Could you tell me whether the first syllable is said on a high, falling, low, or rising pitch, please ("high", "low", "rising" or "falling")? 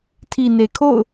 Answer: low